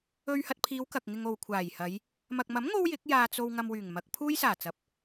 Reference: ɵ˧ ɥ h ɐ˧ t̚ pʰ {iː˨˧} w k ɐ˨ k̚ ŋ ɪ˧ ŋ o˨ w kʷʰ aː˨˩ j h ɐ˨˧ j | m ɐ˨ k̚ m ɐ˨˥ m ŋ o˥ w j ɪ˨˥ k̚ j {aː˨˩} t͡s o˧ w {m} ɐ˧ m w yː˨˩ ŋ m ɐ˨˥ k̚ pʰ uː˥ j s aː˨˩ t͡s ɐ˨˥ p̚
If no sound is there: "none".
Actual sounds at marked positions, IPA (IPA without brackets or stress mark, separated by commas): iː˨˧, aː˧, ŋ